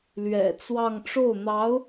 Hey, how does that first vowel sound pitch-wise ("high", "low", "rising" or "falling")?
low